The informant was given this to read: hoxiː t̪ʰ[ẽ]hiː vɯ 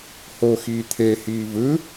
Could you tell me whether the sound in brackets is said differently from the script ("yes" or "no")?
yes